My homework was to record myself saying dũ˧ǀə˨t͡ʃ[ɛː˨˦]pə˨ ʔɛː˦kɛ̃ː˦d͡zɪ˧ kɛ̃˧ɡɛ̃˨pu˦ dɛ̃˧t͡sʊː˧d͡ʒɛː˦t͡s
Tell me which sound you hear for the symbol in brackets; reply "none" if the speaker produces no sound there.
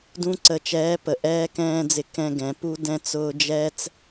ɛː˨˦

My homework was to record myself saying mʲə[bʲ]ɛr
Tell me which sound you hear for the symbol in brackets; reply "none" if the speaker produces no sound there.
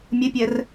pʲ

